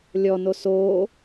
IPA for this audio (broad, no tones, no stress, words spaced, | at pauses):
lʲɔno soː